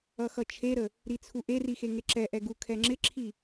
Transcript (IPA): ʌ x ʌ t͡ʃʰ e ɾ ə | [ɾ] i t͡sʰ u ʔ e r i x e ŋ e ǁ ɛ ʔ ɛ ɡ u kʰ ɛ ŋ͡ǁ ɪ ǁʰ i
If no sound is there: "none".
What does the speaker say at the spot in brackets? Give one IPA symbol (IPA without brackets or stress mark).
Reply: ɾ